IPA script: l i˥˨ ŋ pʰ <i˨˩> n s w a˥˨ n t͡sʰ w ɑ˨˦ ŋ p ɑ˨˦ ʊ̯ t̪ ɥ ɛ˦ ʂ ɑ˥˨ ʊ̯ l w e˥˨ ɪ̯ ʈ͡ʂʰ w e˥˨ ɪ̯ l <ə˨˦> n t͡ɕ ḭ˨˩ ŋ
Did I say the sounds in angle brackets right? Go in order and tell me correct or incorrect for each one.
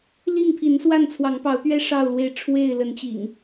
incorrect: i˨˦, correct

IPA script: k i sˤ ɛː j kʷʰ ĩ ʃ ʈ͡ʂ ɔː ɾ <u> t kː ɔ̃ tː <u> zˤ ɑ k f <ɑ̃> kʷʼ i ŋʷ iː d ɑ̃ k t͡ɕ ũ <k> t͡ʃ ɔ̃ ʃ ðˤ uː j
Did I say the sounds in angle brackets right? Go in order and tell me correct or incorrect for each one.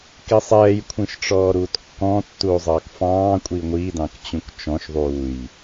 incorrect: uː, incorrect: uː, incorrect: ɑ̃ː, correct

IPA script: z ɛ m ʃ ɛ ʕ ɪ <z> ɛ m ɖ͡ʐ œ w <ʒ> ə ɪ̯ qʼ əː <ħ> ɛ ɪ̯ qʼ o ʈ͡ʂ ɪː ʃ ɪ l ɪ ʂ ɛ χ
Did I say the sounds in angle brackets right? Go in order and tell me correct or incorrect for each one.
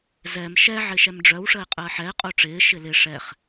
incorrect: ʃ, incorrect: ʂ, correct

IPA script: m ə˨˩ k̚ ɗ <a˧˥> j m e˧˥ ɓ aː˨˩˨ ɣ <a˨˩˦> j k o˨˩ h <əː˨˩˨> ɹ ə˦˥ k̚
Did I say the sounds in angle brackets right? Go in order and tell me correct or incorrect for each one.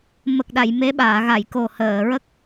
incorrect: a˨˩˨, incorrect: a˨˩˨, correct

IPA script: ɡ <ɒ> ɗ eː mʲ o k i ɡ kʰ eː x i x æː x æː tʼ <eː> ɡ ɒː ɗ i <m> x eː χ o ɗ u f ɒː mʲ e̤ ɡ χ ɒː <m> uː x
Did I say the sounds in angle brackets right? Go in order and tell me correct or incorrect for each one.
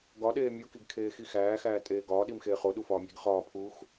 correct, correct, correct, incorrect: pʰ

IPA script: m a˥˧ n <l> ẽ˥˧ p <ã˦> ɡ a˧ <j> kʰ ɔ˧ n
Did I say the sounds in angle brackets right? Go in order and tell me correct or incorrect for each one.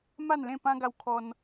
correct, correct, incorrect: w

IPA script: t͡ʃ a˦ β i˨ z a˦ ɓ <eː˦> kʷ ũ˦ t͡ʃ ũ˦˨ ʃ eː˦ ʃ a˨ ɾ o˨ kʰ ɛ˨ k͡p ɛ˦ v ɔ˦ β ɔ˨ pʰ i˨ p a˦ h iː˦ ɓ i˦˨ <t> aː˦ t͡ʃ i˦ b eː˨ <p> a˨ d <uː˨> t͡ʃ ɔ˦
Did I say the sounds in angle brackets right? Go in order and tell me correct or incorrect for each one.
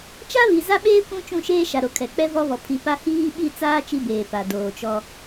correct, incorrect: t͡s, correct, incorrect: oː˨

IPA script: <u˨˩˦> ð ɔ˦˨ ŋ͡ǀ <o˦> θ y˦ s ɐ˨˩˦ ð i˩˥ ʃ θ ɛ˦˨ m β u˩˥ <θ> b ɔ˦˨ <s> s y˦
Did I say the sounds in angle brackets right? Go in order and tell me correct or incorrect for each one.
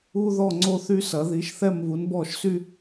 incorrect: u˦, correct, incorrect: n, incorrect: ʃ

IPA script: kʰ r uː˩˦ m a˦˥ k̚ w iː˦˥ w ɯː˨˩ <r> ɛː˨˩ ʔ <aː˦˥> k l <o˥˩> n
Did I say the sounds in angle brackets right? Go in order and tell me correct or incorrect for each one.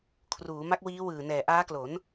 incorrect: n, correct, incorrect: o˩˦

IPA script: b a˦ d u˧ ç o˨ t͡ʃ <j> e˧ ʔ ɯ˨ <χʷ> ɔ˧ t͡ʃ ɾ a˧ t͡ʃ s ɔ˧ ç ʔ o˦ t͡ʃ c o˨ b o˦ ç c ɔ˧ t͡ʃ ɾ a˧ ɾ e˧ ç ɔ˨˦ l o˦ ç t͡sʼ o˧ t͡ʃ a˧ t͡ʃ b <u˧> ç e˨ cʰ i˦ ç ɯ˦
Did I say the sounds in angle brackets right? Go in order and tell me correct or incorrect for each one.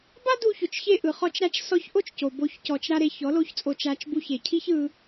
incorrect: ç, incorrect: χ, correct

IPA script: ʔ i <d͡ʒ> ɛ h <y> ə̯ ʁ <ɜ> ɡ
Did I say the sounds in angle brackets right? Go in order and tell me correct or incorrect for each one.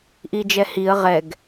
correct, incorrect: i, incorrect: ɛ

